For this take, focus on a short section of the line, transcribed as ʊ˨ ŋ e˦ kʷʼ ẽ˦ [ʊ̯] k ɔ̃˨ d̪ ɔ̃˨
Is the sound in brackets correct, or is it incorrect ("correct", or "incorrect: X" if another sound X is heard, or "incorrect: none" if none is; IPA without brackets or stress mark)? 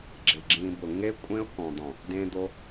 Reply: correct